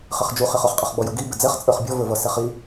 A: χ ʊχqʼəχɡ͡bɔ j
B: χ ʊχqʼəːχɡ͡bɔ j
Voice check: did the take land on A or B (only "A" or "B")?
A